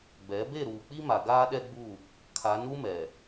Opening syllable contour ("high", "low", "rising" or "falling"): rising